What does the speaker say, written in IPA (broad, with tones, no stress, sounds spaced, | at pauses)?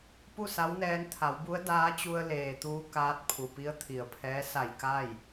p u˥˨ s a˧˥ w n ɛː˧˥ n t̪ʰ a˩˧ w b u˧˥ ə̯ d aː˧˥ t͡ɕ u˧ ə̯ l eː˩ t̪ uː˧˥ k aː˧˥ t̚ pʰ u˩ p i˧˥ ə̯ t̪ʰ i˩ ə̯ pʰ ɛː˧˥ s a˧˩ j k a˥˨ j